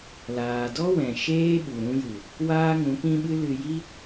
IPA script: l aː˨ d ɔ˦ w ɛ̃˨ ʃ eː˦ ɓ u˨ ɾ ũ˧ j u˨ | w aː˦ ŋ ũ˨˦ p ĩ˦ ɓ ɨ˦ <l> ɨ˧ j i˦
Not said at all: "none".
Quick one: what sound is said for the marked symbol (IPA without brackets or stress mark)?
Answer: l